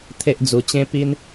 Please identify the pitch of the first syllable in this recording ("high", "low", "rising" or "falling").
high